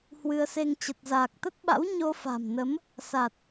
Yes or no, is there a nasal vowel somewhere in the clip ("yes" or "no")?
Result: no